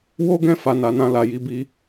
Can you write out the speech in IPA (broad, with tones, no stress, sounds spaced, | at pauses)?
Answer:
w o˦ ɡ ɛ̃˦˨ f a˨ n a˨ n ã˧ l a˨ j i˧ b i˧